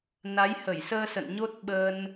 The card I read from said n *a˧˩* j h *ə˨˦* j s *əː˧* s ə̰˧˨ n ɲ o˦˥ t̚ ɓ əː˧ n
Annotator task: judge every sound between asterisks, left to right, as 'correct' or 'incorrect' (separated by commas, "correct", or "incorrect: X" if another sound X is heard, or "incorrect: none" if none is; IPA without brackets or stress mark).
incorrect: a˨˦, incorrect: ə˧˩, correct